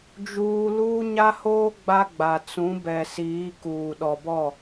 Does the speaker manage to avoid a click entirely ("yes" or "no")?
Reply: yes